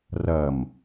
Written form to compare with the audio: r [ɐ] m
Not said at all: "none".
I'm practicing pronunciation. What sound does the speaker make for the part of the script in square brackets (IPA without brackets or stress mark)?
ɐ